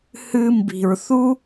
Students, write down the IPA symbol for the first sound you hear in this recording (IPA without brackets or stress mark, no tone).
h